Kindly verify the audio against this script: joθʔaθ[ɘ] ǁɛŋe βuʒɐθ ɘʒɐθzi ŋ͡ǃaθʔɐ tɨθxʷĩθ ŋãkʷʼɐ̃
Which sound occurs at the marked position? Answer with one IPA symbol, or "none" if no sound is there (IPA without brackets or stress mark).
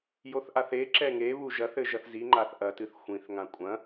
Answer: e